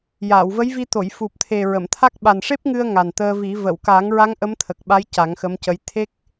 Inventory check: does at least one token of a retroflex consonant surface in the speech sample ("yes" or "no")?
yes